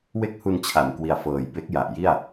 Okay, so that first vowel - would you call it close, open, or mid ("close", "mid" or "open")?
mid